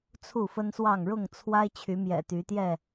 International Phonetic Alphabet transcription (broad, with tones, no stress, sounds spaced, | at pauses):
t͡sʰ u˥˨ f ə˦ n s w ɑ˥˨ ŋ ɻ ʊ˥˨ ŋ t͡sʰ w a˦ ɪ̯ t͡ɕʰ y˨˦ m j ɛ̰˨˩ t̪ y˨˦ t̪ j ɛ˥˨